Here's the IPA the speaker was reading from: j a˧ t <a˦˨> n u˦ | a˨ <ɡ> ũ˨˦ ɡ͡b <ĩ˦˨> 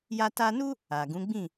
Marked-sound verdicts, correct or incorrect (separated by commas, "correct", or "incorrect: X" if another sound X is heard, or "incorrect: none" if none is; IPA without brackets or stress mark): incorrect: a˧, correct, correct